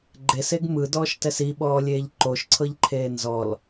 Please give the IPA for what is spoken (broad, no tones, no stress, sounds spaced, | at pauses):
ɡ͡ǃ e s e ɡ m ɯ d ɔː ʃ t ɛ s i ɓ ɔː lʲ eː ʎ ǃ o ʃ ǀʰ ɤ ʎ ǃʰ eː n z ɔ l